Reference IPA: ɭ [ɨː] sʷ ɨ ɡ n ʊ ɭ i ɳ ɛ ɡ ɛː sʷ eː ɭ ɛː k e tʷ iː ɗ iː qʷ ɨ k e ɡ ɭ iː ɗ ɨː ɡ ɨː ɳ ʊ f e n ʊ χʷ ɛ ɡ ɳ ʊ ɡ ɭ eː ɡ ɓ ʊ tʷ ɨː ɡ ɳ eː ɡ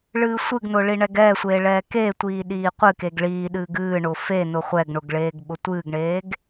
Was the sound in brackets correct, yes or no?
yes